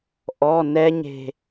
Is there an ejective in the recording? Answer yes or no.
no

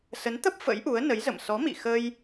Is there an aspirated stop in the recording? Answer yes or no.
no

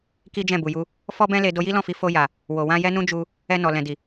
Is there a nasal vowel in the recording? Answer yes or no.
yes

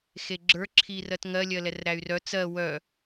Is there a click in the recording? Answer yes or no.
yes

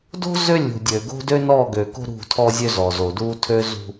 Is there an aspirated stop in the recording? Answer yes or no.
yes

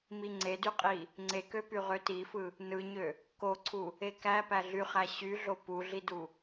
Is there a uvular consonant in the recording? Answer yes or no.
yes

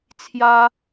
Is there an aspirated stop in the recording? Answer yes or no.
yes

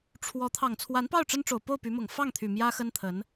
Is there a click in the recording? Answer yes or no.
no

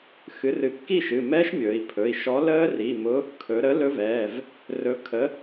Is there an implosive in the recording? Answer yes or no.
no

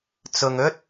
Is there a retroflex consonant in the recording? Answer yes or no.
no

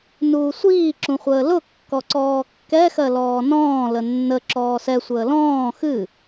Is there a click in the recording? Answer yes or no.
yes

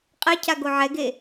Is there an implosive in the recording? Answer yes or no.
no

